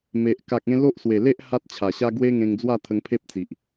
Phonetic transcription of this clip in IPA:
m e˨ ʔ k a˨ k̚ ẽ˧ l o˦ ʔ s w e˨˩ l e˦ ʔ h a˦ t̚ t͡ɕʰ a˨˩ ɕ a˦ ɡ w e˦ ŋ ẽ˧ ŋ d͡z w a˥˧ t̪ʰ ə˧ ŋ pʰ e˦ p̚ t͡s i˨ ʔ

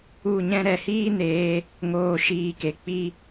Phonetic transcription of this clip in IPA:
u˦˨ ɲ ɛ̃˦ ɾ ɛ˨ h iː˦ n eː˧ | ŋ oː˦˨ ʃ iː˧ k e˨ k͡p i˧

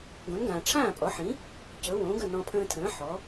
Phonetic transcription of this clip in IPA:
ɡ õ˩˥ n ɡ ãː˩ ʈ͡ʂʰ ãː˥˩ pʼ ɔ˩˥ ħ ĩ˩˥ | c ɵ˩˥ w õː˩˥ ɡ ə˥˩ n ɔ̃˧ pʰ ə̃ː˧ tʰ ə̃ː˩˥ ħ ɔ˩˥

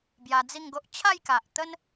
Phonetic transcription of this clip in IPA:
b j a˧ d͡z i˥˧ ŋ ɡ o˦ ʔ t͡ɕʰ a˥˧ j k a˨ ʔ t̪ ə˦ n

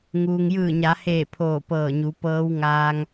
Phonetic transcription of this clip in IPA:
ŋ uː˩ ŋ j ɯː˧˩ ɲ a˩˧ h eː˧˩ pʰ oː˧˩ p ɤː˧˩ ɲ u˩˧ p ɤː˧˥ w ŋ aː˧ ŋ

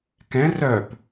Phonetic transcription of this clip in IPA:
k ɛ̃ r œ p

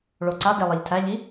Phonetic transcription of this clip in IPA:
ɭ o ǀ a d e lˠ e ʎ tʰ æ ʎ i

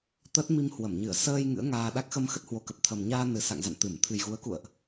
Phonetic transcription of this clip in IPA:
t̪ ə˦˥ t̚ m i˧ m h w ə˧˩ m ɲ ɨ˧˩ ə̯ s əː˧ j ŋ ɨ̰˧˥ ə̯ ŋ aː˧ ɗ a˦˥ k̚ x ə˧ m x ə˦˥ t̚ h w o˨˦ k ə˨˩ p̚ t̪ʰ ə˨˩ m ɲ aː˧ n ɨ˨˩ s a̰˧˨ ŋ z a̰˧˨ n t̪ ɨ˧˩ m t̪ʰ ɨ˨˩ j ɣ u˨˦ ə̯ k ṵ˧˨ ə̯ ʔ

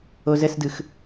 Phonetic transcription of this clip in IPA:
o z ə s d ɯ x

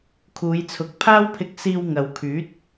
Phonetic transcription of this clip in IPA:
kʰ uː˨˧ j t͡sʰ ʊ˨˥ k̚ pʰ aː˥ w pʰ ɪ˧ k̚ s iː˧ w ŋ ɐ˨ w kʰ yː˨˥ t̚

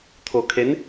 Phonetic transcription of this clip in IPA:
t̪ʰ o˧ kʰ e˧˥ n

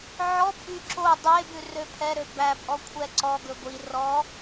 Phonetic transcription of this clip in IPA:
ʕ ɔ pʼ y ǁ o dˤ e b ʉ r ø pʰ ɛ ɾ ø b æ pʼ ɔ kʷʰ ɛ ǀ ɔ ɡ ɵ ɡʷ i r ɔ

